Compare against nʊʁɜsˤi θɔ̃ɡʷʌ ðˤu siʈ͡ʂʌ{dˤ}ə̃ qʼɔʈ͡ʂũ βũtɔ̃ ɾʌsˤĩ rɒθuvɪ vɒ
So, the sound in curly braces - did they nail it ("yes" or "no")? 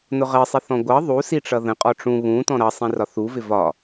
no